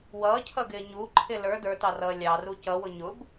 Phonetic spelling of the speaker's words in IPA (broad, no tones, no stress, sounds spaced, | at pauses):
w ʌː cʰ ʌ ɡ ɪː ɲ u ǃʰ ɪ l ə˞ d ə˞ t ɑ r ʌː lʲ ɑ r u c ʌ w ʊ ɲ ʊ b